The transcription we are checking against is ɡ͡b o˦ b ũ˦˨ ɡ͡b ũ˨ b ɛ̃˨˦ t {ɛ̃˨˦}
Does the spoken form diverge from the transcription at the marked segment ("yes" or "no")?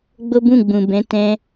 yes